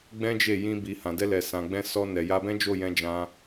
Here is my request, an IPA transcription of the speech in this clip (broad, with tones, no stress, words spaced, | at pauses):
ɡ͡bɛ̃˦d͡ʒe˦˨ jĩ˧bi˨hã˨ dɛ˧lɛ˨sã˨ɡ͡bɛ̃˧ sɔ˧nɛ˨ ja˧bɛ̃˦d͡ʒo˦˨jɛ̃˧ d͡ʒã˧